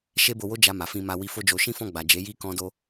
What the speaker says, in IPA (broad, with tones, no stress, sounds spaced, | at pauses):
ʃ e˦ b o˧ w o˦ d͡ʒ a˧ m a˨ f ĩ˧ m a˧ w i˧ f o˦ d͡ʒ o˧ ʃ ĩ˦ f ɔ̃˦˨ ɡ͡b a˨ d͡ʒ e˨˦ j i˦ k ɔ̃˦ d o˦